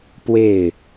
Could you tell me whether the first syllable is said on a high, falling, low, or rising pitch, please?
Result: falling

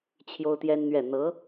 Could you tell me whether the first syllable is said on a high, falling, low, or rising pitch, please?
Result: high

